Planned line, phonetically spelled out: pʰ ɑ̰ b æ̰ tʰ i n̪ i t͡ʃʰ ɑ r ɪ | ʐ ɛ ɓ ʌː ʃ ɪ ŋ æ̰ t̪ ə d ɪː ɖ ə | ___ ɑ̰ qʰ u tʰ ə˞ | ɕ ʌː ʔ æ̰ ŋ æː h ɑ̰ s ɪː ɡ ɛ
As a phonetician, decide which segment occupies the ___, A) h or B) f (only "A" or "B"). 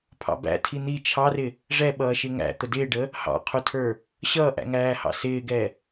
A